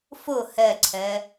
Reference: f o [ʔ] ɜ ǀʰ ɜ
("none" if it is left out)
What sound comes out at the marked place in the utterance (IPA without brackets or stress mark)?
h